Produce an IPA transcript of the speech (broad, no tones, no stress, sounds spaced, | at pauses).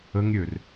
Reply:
ə ŋ ɾʲ ø r